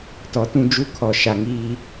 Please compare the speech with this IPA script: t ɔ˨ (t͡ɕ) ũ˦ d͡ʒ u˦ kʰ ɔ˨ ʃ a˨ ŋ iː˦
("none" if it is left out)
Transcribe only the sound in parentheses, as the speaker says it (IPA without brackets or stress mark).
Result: t